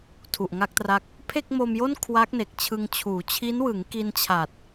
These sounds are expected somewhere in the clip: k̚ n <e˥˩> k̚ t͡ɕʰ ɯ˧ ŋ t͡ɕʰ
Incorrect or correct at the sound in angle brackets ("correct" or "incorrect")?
incorrect